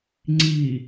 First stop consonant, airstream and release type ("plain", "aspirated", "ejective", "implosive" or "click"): click